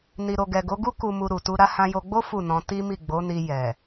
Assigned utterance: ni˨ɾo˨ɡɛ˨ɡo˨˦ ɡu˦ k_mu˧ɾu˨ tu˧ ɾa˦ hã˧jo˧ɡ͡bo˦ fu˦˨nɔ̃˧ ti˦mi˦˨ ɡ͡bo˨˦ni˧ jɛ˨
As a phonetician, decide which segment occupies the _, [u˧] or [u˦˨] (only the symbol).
u˧